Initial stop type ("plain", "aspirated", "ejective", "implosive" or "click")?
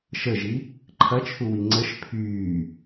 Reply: click